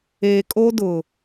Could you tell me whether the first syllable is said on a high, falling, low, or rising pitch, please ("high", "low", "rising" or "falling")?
low